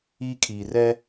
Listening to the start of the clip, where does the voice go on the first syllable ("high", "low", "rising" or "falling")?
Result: high